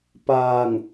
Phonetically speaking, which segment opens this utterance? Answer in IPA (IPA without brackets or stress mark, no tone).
p